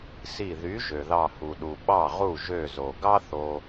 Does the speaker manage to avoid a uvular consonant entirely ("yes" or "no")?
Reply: no